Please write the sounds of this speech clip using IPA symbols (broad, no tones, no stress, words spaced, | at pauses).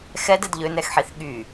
xɛdɛd ʎønɛxħiθ ɠy